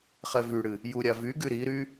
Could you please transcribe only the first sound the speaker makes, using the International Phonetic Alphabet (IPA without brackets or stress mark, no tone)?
χ